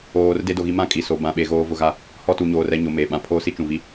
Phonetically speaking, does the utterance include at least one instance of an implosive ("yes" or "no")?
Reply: yes